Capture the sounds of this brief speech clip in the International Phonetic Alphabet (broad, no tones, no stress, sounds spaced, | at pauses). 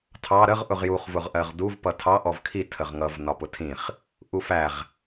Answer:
tʰ ɑ ɾ ə ʁ ʔ ʊ ʁ j u χ v ʊ ʁ ʔ ɜ ʁ d u v p ʌ tʰ ɑ ʔ ɔ v kʰ i tʰ ə ʁ ŋ ʌ v n ɒ p ʊ tʰ ĩ χ | ʔ u f æ ʁ